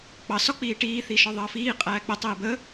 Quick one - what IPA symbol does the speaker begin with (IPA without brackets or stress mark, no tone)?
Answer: k͡p